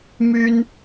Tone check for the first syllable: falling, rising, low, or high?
high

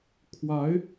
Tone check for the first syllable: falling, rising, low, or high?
rising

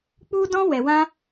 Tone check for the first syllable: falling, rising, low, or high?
high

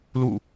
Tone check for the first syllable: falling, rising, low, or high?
falling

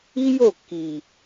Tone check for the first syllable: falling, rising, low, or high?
high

